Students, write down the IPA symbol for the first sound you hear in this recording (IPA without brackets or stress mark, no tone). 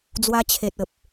d͡z